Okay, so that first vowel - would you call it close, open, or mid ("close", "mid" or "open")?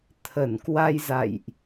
mid